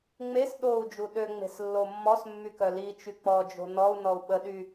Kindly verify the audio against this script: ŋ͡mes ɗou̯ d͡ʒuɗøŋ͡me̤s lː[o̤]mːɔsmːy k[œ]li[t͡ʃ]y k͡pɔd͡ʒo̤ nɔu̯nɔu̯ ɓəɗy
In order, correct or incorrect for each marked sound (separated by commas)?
incorrect, correct, correct